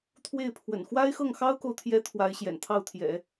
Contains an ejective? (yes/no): no